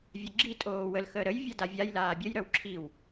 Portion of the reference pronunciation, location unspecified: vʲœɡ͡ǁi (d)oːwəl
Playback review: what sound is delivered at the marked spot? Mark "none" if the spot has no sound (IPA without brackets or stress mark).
tʼ